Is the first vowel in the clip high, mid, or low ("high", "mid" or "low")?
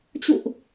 high